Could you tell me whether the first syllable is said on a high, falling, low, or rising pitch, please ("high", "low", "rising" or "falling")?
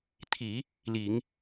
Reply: low